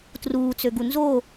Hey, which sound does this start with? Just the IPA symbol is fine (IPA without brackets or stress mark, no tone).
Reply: t